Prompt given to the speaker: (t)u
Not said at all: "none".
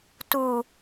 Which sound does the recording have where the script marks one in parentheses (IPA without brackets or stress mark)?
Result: t